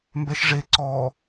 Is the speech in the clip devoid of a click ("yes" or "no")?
no